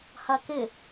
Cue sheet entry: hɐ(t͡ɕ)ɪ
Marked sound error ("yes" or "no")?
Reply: yes